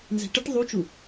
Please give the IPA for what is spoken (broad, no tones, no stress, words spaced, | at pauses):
nzɛ̤ʈɘʈ ðˤut͡ʃu